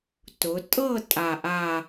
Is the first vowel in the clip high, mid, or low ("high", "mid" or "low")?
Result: high